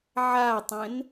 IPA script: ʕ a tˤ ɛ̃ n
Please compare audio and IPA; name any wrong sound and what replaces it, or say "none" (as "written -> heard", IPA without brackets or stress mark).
none